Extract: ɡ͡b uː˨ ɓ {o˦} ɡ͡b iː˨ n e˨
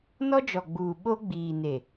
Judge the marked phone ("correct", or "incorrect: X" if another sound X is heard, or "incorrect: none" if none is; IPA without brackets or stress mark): correct